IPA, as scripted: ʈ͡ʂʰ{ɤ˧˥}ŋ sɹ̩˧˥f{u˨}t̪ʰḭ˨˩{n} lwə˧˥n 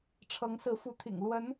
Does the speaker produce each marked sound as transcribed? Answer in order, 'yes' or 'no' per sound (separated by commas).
yes, no, no